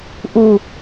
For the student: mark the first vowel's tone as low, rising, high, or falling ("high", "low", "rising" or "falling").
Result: low